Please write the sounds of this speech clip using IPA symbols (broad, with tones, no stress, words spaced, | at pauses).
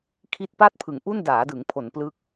kʰi˦˥t̚pa˥˩t̚pʰɯ˩˦ŋʔu˥˩n daː˩˦dɯ˩˦ŋpʰo˩˦n plɯ˦˥k̚